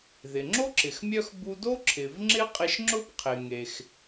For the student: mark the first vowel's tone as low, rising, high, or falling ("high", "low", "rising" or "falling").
low